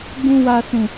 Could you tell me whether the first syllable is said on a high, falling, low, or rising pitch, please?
high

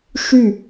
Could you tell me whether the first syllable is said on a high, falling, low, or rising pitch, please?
falling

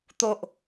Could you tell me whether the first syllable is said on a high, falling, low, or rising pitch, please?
low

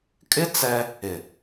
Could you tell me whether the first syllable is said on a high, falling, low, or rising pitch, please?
high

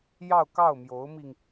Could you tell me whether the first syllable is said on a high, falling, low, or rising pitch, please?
falling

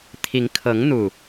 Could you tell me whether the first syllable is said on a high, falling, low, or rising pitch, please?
rising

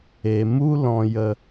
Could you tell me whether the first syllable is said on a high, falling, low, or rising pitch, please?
low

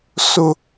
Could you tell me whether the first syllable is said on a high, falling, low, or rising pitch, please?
high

